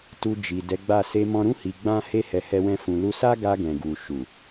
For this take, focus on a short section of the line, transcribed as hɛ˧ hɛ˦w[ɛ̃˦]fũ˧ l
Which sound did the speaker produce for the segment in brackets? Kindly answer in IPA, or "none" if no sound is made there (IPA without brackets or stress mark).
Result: ɛ̃˦